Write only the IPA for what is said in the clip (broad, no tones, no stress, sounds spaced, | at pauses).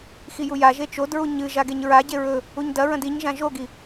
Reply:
x i j u j a ʒ e t͡ʃ o d ɹ u ɲ ɨ ʒ a ɡ e ɲ ɹ a ɟ e ɹ ɵ | u ɲ d ɐ ɹ ɐ̃ d i ɲ ʒ ã ʒ o ɡ i